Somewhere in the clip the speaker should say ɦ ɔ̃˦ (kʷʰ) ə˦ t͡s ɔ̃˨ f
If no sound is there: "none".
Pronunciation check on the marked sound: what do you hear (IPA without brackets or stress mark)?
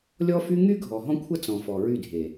kʷʰ